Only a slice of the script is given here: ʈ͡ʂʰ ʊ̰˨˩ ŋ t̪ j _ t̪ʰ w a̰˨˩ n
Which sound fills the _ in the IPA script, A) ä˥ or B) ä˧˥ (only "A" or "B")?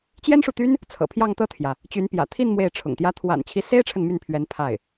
A